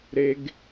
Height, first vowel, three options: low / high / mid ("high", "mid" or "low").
mid